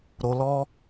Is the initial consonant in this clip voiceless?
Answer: no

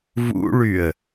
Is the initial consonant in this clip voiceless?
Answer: no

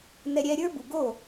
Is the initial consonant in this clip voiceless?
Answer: no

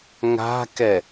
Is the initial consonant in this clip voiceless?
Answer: no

